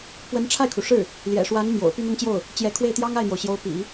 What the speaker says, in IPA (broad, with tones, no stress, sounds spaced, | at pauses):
p w ə˧˥ n ʈ͡ʂʰ a˥˩ ɪ̯ kʰ u˩ ʂ ɻ̩˥˩ | l j ɛ̰˨˩ ʂ w a˧˥ n m j o̰˨˩ ʊ̯ p y˥˧ n̪ ʊ˥˧ ŋ t͡ɕ j o˥˩ ʊ̯ | t͡ɕ j ɛ˧˥ kʰ w e˥˩ ɪ̯ t̪ j ɑ˥ ŋ a˥˩ ɪ̯ n̪ j o˩ ʊ̯ ɕ j o˧˥ ʊ̯ p ḭ˨˩˦